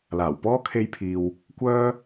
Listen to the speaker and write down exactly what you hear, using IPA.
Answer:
l aː˨˩ w p ɔː˥ kʰ e˥ j pʰ iː˧ w | kʷ œː˥

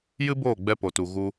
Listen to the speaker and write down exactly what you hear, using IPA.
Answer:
j ɨ˦ b oː˦˨ ɡ͡b ɛ˧ p o˨ t u˨ ɣ u˧

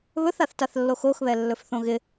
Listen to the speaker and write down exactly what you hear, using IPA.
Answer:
β ɵ θ a θ t a θ lː o x o x β ɛ lː ɵ f θ õ ɣ ɪ

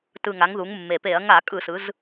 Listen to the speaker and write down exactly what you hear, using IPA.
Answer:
t ɯ˨˩ ŋ a˩˧ ŋ ð u˩˧ ŋ mː e˨˩ p e˧˩˧ ɐ̯ ŋ a˧˩˧ kʼ ɯ˧˩˧ s ɯ˩˧ z

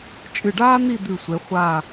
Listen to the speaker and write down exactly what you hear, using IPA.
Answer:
t͡ʃʼ ɨ˧˩ ɖ aː˥ n̪ i˥˧ d̪ ʉ˧˩ sʷ e˩˧ χʷ a˧˩

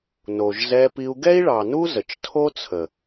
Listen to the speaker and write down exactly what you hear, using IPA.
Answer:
n o˨ ʒ z ɛ˧ p i˧ u̯ ɡ ɛ˦ i̯ ɭ ɑ˨ n u˦ z ə˨ t͡ʃ tʰ o˦ t͡sʰ ə˨

